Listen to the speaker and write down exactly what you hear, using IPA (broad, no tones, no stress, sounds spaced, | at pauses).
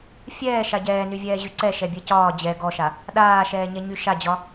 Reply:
fʲ ɛː ʃ a ɟ ɛː n y vʲ ɛː ʑ y ǀ ɛ ʃ ɛ bʲ ɛ c ɒː d͡ʑ ɛ ɡ ɔ ʃ a | ɗ aː ʃ ɛː ɲ ɛ ɲ y ʃ a d͡ʑ ɒ